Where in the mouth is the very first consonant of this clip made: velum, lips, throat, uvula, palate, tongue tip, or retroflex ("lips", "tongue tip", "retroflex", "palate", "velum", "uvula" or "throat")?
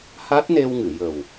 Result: throat